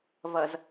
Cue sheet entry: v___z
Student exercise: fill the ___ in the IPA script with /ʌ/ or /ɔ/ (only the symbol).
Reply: ʌ